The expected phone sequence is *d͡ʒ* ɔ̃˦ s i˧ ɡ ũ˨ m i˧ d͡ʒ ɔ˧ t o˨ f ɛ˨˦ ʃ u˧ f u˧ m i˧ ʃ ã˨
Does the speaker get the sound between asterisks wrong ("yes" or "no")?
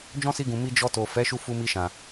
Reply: no